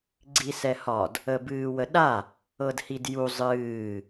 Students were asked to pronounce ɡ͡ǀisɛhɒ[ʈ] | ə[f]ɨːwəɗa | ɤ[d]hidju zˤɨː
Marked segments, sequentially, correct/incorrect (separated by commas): incorrect, incorrect, correct